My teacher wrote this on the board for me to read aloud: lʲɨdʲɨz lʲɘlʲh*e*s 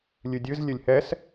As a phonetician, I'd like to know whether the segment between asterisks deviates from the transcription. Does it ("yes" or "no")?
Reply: yes